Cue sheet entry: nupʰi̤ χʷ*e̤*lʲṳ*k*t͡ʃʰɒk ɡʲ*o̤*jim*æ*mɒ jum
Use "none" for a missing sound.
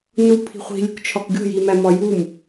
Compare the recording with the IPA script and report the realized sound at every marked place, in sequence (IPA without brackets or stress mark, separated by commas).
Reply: i̤, k, o̤, æ